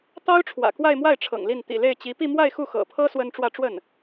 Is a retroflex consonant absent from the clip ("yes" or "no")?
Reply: no